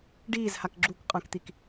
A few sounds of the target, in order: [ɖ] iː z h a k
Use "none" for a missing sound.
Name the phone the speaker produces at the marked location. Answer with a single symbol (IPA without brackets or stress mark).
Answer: ɖ